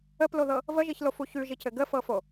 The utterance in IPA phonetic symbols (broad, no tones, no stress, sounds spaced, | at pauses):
ə p l o ð ɤ | v ə ʒ i ç l o f u ç ʉ ʒ i c ɘ ɡ ə f ɤ f o